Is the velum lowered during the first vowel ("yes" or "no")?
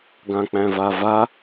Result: yes